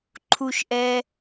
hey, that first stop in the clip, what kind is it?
click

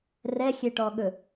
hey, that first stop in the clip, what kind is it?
plain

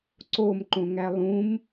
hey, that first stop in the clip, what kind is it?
click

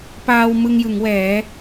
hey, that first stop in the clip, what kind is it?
plain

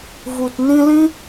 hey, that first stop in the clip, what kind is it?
plain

